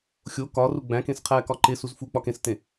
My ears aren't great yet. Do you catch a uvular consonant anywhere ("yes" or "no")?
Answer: yes